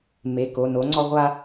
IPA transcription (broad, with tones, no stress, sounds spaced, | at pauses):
m e˩˧˩ k o˩˧˩ n o˨˥ ŋ͡ǀ ɔ˦ ʁʷ a˦